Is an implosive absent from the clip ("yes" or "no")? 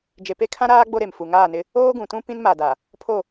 yes